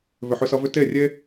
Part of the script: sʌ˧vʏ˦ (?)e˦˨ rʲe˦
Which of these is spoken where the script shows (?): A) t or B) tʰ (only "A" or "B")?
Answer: A